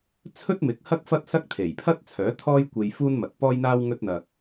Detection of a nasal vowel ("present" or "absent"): absent